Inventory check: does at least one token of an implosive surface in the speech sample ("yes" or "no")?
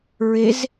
no